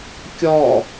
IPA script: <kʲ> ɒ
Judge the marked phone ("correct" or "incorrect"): correct